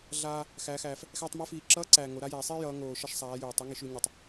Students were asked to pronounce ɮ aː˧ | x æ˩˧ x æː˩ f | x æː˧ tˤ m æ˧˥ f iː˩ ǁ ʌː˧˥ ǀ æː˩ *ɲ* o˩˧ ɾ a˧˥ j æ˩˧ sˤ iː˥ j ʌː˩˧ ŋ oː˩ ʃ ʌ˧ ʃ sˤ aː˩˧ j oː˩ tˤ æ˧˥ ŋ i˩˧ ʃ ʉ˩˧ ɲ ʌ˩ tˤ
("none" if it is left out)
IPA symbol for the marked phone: ŋ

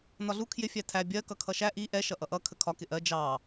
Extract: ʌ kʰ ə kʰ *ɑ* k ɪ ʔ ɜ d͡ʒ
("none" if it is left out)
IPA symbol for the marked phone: ɒ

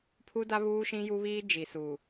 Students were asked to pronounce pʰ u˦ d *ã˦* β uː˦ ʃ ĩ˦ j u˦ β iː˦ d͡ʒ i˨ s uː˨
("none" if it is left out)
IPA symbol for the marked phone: a˦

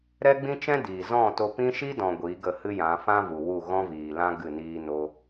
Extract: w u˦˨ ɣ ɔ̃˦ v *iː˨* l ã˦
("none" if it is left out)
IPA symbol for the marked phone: iː˨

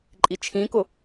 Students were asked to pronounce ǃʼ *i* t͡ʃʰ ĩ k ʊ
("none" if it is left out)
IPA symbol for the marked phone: i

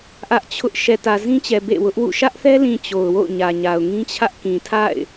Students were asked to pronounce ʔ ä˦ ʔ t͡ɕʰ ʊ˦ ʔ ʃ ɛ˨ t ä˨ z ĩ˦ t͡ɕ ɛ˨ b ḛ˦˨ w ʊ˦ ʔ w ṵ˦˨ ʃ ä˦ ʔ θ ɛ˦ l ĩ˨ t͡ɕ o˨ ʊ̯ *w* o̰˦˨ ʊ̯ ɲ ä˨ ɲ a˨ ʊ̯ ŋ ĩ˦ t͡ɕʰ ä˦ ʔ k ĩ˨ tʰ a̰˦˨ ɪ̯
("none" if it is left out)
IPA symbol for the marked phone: w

